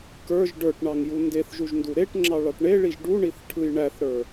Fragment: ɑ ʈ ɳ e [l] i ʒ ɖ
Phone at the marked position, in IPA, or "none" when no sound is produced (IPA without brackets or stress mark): ɭ